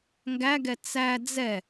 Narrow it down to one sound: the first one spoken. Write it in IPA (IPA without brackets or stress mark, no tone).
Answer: ŋ